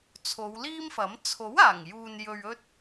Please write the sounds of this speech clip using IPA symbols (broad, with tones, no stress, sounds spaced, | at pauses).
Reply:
t͡sʰ o˨˧ w l iː˥ m f ɐ˨˥ m t͡sʰ o˨˥ w aː˨˩ ŋ j uː˨ n j ɵ˨ ɥ ɵ˧ t̚